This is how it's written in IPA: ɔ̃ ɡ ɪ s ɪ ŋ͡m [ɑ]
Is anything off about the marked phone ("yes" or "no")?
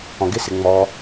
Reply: yes